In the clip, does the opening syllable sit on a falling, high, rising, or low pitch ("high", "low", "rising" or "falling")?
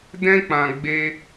high